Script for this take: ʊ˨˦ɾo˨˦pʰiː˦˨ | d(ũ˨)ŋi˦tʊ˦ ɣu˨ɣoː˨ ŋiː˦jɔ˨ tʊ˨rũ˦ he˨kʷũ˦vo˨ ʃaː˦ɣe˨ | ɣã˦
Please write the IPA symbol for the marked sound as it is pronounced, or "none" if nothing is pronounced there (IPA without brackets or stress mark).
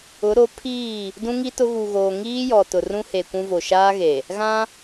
ũ˦